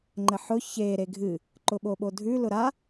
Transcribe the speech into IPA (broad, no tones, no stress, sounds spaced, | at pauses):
ŋ͡ǃ ə ħ ʊ ç e ɾ e ɡʱ ɨ | ǃ ʊ ɓ o ɓ o dʱ ʉ l ʊ ɾ a